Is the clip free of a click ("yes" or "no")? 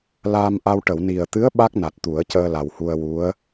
yes